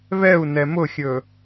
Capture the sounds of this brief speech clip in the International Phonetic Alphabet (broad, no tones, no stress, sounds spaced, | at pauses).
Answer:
β ɛ u̯ n ɛ m ʊ xʲ ɵ